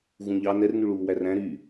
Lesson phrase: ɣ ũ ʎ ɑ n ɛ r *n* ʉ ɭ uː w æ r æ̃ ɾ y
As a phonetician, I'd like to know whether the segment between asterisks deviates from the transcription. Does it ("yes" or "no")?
no